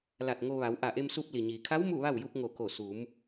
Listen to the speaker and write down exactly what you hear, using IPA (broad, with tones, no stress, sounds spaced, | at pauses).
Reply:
l a˧˩ t̚ ŋ o˧ ʋ a˩˧ w ʔ a˧˩ ʔ e˧ m s u˧ p̚ l i˩ ɲ iː˩ kʰ a˧˥ w m u˥˨ ʋ a˥˨ w j u˧ p̚ ŋ o˧˩ k o˧˩ s u˩˧ m